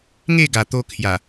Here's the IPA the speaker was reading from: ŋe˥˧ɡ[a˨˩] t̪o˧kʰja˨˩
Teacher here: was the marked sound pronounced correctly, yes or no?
yes